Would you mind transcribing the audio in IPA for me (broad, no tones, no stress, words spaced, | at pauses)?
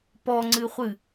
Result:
pɔŋ͡ǀɨχʷɨ